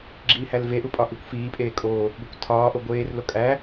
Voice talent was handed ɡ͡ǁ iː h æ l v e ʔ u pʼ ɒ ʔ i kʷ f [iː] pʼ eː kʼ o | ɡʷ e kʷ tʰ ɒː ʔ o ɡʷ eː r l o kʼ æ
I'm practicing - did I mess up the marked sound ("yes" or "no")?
no